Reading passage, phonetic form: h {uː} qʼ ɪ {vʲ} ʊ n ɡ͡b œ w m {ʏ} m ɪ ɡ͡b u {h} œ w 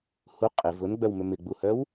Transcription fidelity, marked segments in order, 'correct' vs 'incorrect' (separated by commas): incorrect, incorrect, correct, correct